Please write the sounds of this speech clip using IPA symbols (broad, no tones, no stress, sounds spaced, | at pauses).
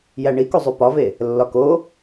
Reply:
j æ ɳ i k u zˤ u p ɒ v e | lː ɒ k o